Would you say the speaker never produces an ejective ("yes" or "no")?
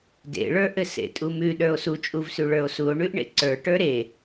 no